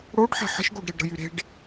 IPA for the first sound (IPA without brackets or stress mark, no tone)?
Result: ɽ